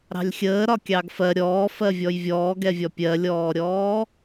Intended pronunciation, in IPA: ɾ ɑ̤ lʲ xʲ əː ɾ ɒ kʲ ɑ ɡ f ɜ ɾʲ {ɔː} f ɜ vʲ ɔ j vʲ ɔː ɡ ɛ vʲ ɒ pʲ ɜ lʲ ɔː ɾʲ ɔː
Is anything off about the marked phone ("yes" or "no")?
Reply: no